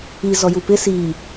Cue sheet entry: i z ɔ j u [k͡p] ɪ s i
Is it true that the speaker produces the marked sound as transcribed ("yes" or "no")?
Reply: no